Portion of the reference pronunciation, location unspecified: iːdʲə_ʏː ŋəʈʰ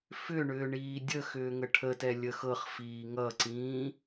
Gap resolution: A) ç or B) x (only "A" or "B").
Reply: B